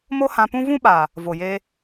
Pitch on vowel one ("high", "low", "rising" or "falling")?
high